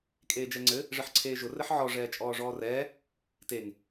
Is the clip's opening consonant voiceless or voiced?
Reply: voiceless